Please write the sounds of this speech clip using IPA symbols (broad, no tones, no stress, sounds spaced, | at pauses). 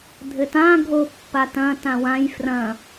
dʱ ɘ t ã ɡʱ o pː a t ɐ̃ t ã w ã j f r ɐ̃